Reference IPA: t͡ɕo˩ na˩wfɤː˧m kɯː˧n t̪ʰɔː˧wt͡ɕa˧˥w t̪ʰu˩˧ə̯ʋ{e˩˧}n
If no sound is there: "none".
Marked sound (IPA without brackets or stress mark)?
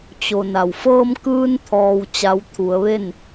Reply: e˥˨